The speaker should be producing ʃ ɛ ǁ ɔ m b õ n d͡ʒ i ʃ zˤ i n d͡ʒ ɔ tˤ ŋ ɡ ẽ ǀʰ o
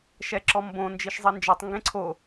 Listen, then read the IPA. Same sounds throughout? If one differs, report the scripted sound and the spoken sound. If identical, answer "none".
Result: none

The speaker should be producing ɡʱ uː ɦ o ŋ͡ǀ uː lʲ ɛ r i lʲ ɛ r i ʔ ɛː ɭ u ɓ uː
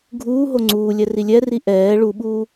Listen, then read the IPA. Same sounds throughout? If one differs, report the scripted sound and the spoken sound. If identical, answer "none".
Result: none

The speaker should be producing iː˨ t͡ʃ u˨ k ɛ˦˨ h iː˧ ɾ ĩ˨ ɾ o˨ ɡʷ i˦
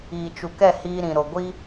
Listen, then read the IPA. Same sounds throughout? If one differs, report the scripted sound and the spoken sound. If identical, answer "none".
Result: none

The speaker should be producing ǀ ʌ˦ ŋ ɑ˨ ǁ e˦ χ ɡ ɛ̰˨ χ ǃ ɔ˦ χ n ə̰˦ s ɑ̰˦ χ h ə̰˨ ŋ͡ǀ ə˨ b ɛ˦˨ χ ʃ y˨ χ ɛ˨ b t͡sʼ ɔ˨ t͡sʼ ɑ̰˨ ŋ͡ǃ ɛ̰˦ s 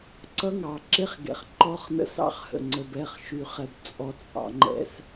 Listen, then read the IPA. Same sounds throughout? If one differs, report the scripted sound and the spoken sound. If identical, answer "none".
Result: none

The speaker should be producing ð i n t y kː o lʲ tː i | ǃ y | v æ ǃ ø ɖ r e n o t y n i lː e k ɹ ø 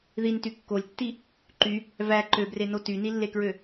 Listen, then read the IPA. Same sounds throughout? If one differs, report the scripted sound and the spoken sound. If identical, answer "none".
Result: ɖ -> b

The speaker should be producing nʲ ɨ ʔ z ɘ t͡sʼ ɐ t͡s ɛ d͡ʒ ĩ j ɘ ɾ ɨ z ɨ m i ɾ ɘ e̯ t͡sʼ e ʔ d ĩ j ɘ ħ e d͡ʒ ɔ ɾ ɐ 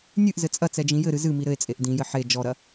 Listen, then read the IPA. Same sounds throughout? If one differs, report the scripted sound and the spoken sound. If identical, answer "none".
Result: none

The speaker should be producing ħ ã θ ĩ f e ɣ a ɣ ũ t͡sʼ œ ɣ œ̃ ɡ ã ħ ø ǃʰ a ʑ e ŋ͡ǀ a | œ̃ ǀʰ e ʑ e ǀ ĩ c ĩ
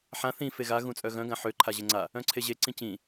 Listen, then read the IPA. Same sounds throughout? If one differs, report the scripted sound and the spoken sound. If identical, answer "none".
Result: none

